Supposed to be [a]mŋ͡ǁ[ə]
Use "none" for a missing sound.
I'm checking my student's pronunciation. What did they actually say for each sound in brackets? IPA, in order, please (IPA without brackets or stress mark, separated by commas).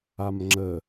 a, ə